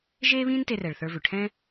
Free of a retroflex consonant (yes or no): no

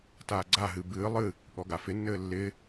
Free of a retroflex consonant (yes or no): yes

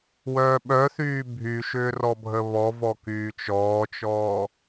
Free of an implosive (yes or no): no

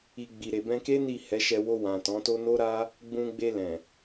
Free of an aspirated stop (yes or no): yes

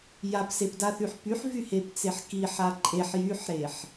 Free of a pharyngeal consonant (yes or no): no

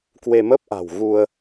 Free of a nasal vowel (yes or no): yes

